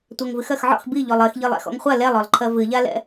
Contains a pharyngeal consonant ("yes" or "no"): yes